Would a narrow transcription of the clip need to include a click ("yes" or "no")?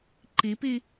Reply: yes